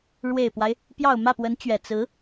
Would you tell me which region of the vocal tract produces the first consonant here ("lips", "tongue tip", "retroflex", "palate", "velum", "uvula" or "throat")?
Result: retroflex